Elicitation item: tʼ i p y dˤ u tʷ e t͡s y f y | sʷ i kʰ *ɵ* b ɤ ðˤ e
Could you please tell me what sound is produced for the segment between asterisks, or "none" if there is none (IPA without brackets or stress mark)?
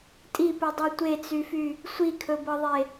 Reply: ɵ